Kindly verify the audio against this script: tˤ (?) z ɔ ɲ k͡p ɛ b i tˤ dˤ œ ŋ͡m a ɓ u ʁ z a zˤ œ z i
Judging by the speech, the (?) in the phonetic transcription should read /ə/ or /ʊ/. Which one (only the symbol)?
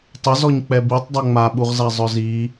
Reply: ə